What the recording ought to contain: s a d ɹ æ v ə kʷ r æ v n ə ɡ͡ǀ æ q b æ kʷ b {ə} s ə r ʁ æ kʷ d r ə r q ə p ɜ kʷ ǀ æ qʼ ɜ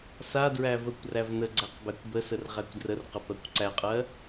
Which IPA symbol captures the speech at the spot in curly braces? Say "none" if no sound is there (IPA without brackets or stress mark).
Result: ə